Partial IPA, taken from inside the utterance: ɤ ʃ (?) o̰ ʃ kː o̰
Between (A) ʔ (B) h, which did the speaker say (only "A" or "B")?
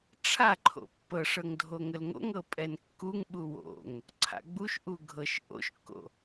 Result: A